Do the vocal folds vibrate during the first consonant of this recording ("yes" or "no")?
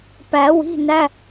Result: no